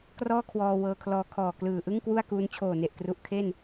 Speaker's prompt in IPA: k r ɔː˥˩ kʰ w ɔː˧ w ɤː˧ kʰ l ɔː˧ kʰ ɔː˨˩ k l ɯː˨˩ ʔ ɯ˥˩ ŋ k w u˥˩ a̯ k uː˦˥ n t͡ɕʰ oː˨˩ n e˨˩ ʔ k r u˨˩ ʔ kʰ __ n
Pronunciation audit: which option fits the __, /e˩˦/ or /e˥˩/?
e˥˩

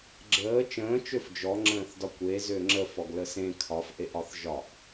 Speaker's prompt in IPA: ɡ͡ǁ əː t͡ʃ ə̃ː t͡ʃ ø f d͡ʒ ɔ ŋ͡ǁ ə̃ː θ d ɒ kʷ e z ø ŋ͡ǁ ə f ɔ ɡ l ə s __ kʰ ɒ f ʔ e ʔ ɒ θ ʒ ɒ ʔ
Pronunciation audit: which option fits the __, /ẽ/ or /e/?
ẽ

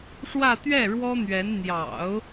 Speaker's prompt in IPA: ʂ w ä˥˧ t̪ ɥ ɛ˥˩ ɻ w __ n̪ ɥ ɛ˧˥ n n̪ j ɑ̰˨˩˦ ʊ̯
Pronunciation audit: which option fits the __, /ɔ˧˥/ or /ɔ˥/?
ɔ˥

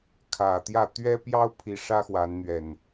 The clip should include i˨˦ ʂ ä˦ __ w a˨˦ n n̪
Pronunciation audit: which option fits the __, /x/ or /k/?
x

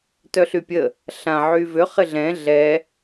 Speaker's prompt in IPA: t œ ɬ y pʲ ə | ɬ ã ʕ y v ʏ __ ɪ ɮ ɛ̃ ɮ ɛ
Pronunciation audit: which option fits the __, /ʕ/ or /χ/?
χ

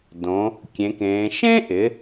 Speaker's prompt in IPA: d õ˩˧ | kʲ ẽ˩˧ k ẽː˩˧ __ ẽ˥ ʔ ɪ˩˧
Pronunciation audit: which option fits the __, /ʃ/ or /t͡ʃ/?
ʃ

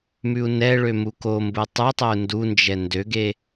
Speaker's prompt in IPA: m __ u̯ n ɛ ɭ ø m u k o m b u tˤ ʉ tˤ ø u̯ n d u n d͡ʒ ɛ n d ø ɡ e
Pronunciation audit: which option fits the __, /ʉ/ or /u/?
ʉ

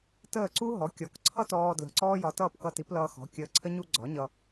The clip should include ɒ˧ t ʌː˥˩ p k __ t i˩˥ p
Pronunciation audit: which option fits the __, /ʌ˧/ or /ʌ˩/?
ʌ˧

